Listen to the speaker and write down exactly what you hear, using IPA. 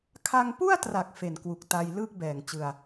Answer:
kʰ a˧ ŋ p u˥˩ a̯ t r a˨˩ k̚ f e˨˩ n k w u˨˩ k̚ t a˧ j l ɯː˥˩ k̚ b ɛː˨˩ ŋ t͡ɕ ɯ˧ a̯

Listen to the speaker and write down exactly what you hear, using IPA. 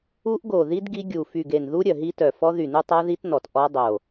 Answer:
u˦˥ ʔ ɡ o˧˩ ð i˦˥ d ɡ i˦˥ ɡʲ u˧˩ f y˧˩ ɡ e˧˩ n ð u˦˥ ɾʲ œ˧˩ ɦ i˦˥ t œ˧˩ f ɔ˦˥ ð y˧˩ n u˦˥ tˤ a˦˥ ð i˦˥ t n ɔ˧˩ t ʔ ɔ˦˥ dˤ o˧˩

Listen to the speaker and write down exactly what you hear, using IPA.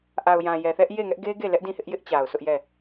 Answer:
ʔ a˨ ʊ̯ j ã˨ j ɛ˨ θ ɛ˦ ʔ j e˦˨ ŋ ɛ˦ ʔ ɡ e˦ ɡ e˦˨ l ɛ˦ ʔ d ĩ˦˨ h ɪ˦ ʔ j ɪ˦ ʔ t͡ɕ a˨ ʊ̯ sʰ ʊ˦ ʔ j ɛ˦˨

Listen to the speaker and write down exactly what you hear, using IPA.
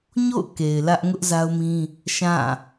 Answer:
ɲ o̰˦˨ ʊ̯ k e˨ ɪ̯ l ä˦ ʔ ŋ ʊ˦ ʔ z a˦ ʊ̯ m ĩ˦ | ʃ ã˦˨

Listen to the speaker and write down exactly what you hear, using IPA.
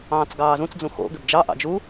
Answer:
ɑ̃ː t͡s ɡ ɑː z ũ t͡s d͡z ũ x o̰ ɡ ʏ b d͡ʒ ɑ ʔ ɑ̰ d͡ʒ u

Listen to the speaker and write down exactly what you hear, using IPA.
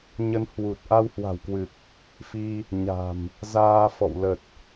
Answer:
ɲ ə˧ n h w u˨˩ t̚ ʔ a˧ w h w a̤˨˩ w k w ɨ˨˩ k̚ | f i˧ | ɲ a̤˨˩ m | z aː˧ f ɔ̰˧˨ w l ə˨˩ t̚

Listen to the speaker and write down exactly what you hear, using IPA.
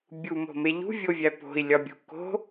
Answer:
bʲ u m o̤ m e ʎ ṳ vʲ o vʲ æ p o̤ i̯ lʲ ɒ bʲ ṳ k o̤

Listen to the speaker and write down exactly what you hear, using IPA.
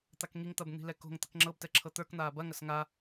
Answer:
t̪ a k ŋ i ŋ t̪ ɐ b n̪ i̤ l ɛ k o̤ ŋ t̪ ə k ŋ͡ǁ ɤ b t ɛ ǁʰ ɤ t̪ ə˞ k n̪ aː b ɐ ŋ ɐ s ŋ a

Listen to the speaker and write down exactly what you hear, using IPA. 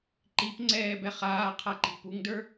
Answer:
ǃ i p ŋ͡ǀ ɛː b ɛ χ aː qʰ a ǃ i̤ p u ŋ d ə˞

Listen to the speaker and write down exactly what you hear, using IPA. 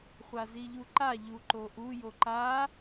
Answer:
χʷ a z i ʎ u ǃ a ʎ u ǃ o ʔ u j o ǃ a

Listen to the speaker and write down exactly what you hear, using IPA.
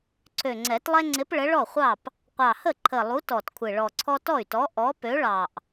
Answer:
ǀʰ ø˨˩ ŋ͡ǀ ɛ˨˩˦ t lˠ ɛ˦ ŋ͡ǀ ɪ˨˥ p ɭ ə˨˥ ɭ ɔ˥˩ χʷ ɑ˥˩ p | qʷ ɑ˨˩ h ə˥˩ ǃʰ ə˨˩ lˠ u˨˥ t ɔ˨˩ t kʷʰ ɪ˨˩ ɭ ɔ˨˩ ǀʰ ɔ˦ t ɔ˥˩ y̯ t ɔ˨˥ ʔ ɔ˨˥ p ø˨˥ ɭ ɑ˨˩ ʔ

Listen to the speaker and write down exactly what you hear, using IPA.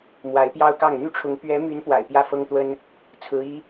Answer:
m w a˧˥ ɪ̯ p j ɑ˥ ʊ̯ k ɑ˥˩ ŋ n̪ y˥ ʈ͡ʂʰ ʊ˧˥ ŋ p ɥ ɛ˧˥ m y˧˥ n p w a̰˨˩ ɪ̯ p j ä˥ f ɤ˥ ŋ t̪ w ə˥ n | t͡sʰ ɹ̩˧˥ i˧˥

